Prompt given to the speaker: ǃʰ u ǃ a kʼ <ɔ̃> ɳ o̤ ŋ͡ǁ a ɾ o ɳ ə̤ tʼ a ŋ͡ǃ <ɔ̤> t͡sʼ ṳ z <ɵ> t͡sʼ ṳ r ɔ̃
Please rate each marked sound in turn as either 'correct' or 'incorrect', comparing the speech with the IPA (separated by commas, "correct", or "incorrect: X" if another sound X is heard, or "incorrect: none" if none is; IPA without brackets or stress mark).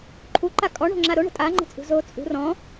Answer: incorrect: ɔ, incorrect: ə̤, incorrect: o